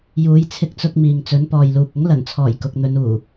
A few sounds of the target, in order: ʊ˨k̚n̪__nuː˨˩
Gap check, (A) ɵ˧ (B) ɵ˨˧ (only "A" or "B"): B